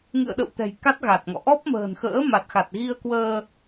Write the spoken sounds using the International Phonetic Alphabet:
ŋ ɨ̰˧˨ ə̯ ɗ ə̰˧˨ w t̪ ɛ̤˨˩ j k a˦˥ t̚ ɣ a˨˩ t̚ ŋ ɔ̰˧˨ ʔ ɔ˦˥ p̚ m ə̤ː˨˩ n x ə̰ː˧˥ m a˨˩ t̚ x a˨˩ t̚ ɣ i˧ ə̯ k w əː˧

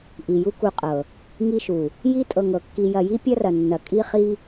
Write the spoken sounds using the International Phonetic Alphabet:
ʔ i˨ j u˦ k u˧ qʼ ɤ˨ | ŋ i˦ ʃ u˨ | j i˦ tʼ ɤ˨ ŋ ɤ˨ kː i˧ j ɐ˧ j i˦ pʲ ɐ˦ r ɐ˨ nː ɐ˨ kʼ i˦ χ i˦

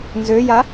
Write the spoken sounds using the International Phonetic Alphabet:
n z ø j a

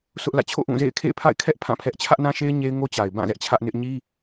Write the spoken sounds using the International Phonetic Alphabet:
s ʊ˦ ʔ l ä̰˦˨ t͡ɕʰ o̰˦˨ ʔ ũ˦˨ z ḛ˦˨ ɪ̯ kʰ ḛ˦˨ ɪ̯ pʰ a̰˦˨ ɪ̯ kʰ ɛ˦ ʔ pʰ ã˦˨ pʰ ɛ˦ ʔ t͡ɕʰ ä˦ ʔ n ã˦ ʃ e˦ ɪ̯ ɲ e˦ ɪ̯ ŋ o˦ t͡ɕ a˨ ɪ̯ b ã˦˨ z ɛ˦ ʔ t͡ɕʰ ä˦ ʔ n ɪ˦ ʔ ɲ i˦

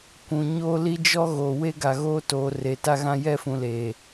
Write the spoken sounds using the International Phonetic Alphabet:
kʷ ũ˨ ɲ o˦ l i˦ d͡ʒ ɔ˦ ɣ o˨ w e˦ ɡ a˨ ɣ oː˦ t oː˨ r e˨ t a˦ ɣ ã˦ j ɛ˦˨ f ũ˨ l eː˨

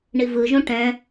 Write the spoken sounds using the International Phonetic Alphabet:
ɳ i v ɯ ʒ ũ ʈ ɛ̃

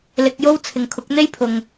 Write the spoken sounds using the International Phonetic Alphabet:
l ɪ˧ k̚ j o˥ w t͡sʰ ɪ˨ ŋ kʰ ʊ˨˥ k̚ n̪ e˥ j pʰ ʊ˨ ŋ

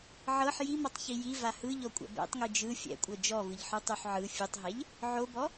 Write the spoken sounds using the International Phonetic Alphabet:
ʕ ɤ ħ j i m ɔ tˤ ç i j i v a h ɯ ʎ ɔ kʷʼ ɛ̰ b ɛ̰ tˤ ŋ ɯ d͡ʒ ɯ fʲ ɛ̰ kʷʼ ɤ d͡ʒ ɔ v ɯ ʎ ħ ɯ tˤ u ħ ʕ ɯ fʲ u tˤ ɦ ɛ ʎ | ʕ o b ɔ

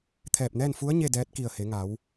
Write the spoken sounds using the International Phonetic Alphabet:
t̪ʰ ɛː˧˩ p̚ n ɛː˥˨ n f u˧˥ ə̯ ɲ e˥˨ d ɛː˧˥ t̚ k i˧˩ ə̯ h e˩˧ ŋ a˩˧ w

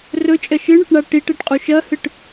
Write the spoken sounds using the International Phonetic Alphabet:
r ɵ t͡ʃʼ ɐ ʃ ɨ ɳ ɵ ʈ ɳ a ʈ i ʈ e ʈ qʼ u ʃ ɐ h ɨ ʈ

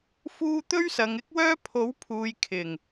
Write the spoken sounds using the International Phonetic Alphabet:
f uː˧ t̪ ɵ˥ ɥ s ɐ˨˧ ŋ ɪ˥ k̚ w œː˥ pʰ o˨˥ w pʰ uː˨ j kʰ ɪ˨˩ ŋ

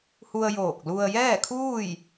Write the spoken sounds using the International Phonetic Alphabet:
h u˧ ə̯ j oː˧˩ k̚ l u˧ ə̯ j ɛː˥˨ kʰ uː˥˨ j

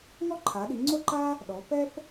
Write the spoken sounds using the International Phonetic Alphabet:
ŋ ɔ˥ ǃʰ a˩˧ ɗ i˩˧ ŋ͡ǀ o˥ ǃ a˥ | ɗ ɔ˩˧ p ɛ˥ p

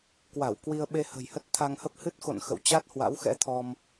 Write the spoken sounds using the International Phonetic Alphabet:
k w a˧˩ w k w i˧ ə̯ ɓ e˧ h ə̤˨˩ j h ə˦˥ t̚ t̪ʰ a˧ ŋ h ə˦˥ p̚ h ɨ˦˥ t̚ x o̰˧˨ n x ə̰˧˨ w t͡ɕ a˦˥ t̚ h w a̰˧˥ w x ɛ̰˧˥ t̪ʰ ɔ˧ m

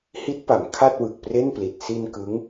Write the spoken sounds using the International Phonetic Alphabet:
h i˦˥ t̚ p a˩˦ m kʰ a˥˩ t̚ w ɯ˨˩ k̚ p r e˥˩ n p l i˨˩ t̚ s i˧ n k ɯ˦˥ ŋ

